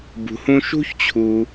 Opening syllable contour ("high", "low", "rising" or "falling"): low